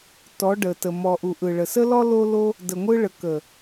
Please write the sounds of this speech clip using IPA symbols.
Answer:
t ɔ˨˦ ɖ ə˨ t ə˨ m ɔ˨ ʔ u˨ ʔ ɯ˨ ɭ ə˨ s ə˦ l ɔ˦ l o˦ l o˦ | d ə˨ ŋʷ ɯ˧ ɭ ə˨ k ə˨

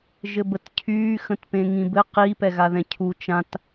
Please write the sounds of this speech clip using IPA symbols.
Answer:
ʒ ɘ b ə t cʰ yː x ə̃ t p ẽ ŋ ĩ b ɘ q i p ɛ ɣ a ð ɛ̃ cʰ u t͡ʃ ã t

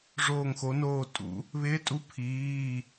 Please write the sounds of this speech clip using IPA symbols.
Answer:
ʐ oː˥˧ ŋ x o˧˥ n oː˥˧ tʼ ṵ˧˥ | β ɪː˧˥ tʼ u˧˥ pʰ iː˧˥˧

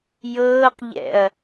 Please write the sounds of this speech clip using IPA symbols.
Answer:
j ɤː q ʎ ɛ̰ ɐ̯

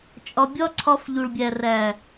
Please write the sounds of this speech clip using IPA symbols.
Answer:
t͡ʃʼ ɒ˧ bʲ ɒ˦ ǀʰ ɒ˧ f ʎ u˨ ɭ bʲ æ˨ r æ˨

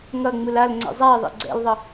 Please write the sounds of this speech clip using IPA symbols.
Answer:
ŋ ʌ ŋ͡m ɯ l a l ŋ͡ǀ ɛ̰ zˤ a i̯ ðˤ ḛ ɡ͡ǀ ɛ̰ l ðˤ ʌ

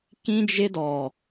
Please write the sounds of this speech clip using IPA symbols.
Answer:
k ĩ˦ d͡ʒ ɪ˦ d ɔ˨

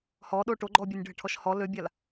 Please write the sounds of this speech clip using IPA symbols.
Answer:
h ɔ ɗ o ʈ o ɡ͡ǃ ɔ bʲ o nʲ ɖʱ ə ʈʰ ɔ ʃ h ɔ l ø bʲ a l

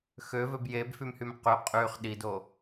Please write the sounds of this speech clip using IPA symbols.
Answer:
x ø v ø b j e b f y m h y m q y qʼ y χ ɗ i d o

